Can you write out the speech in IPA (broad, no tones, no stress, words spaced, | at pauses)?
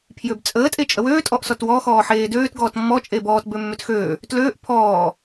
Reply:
pʰjøbt͡sʼəː tʼet͡ʃʼəwøː tʼɔʔsɔtwɔ xɔːħeːdøːt ɡɔːtmːɔ t͡ʃʼebɔːt bømːøtxøː | tløːʔ pʰɔː